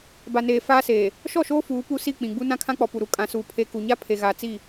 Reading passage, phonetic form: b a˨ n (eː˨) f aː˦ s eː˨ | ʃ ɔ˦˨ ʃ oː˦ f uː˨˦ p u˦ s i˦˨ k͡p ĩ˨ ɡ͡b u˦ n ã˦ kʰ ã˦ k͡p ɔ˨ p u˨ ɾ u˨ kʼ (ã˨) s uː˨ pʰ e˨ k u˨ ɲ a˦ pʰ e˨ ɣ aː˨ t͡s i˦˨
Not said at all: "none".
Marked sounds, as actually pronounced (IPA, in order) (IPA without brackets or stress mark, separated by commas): eː˨, ã˨